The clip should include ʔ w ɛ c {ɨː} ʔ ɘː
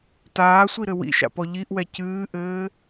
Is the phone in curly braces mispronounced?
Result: no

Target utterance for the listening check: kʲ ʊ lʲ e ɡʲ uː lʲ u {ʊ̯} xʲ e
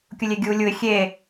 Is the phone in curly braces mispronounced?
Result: yes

